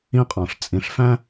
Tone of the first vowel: high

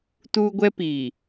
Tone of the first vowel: high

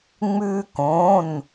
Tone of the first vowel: high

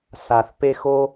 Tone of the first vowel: low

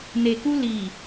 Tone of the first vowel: low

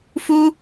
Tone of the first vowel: high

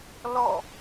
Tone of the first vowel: falling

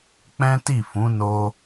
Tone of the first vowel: high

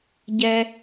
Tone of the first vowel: high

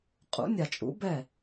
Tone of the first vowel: rising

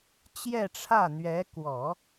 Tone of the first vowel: falling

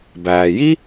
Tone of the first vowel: low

